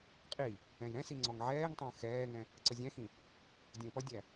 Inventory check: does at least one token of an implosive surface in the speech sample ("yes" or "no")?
no